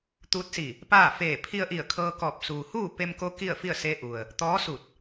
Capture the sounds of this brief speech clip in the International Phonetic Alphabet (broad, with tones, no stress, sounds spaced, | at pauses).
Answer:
t̪ uː˧˥ t̚ s i˧˩ | p aː˥˨ f eː˧˩ pʰ i˧ ə̯ ʔ i˧˩ ə̯ kʰ ɤː˧ k ɔː˧˩ p̚ s uː˩ h uː˥˨ p e˧ m k o˧˥ k i˥˨ ə̯ f i˥˨ ə̯ s e˧˥ ʔ u˩ ə̯ | t̪ ɔː˧˥ s u˧˩ t̚